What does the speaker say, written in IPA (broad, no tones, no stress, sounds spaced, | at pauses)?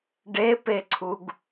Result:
ɖ e p e ǀʰ u ɡ